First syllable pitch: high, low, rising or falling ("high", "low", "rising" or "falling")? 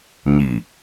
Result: low